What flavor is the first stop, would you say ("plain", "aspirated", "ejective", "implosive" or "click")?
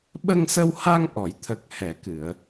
implosive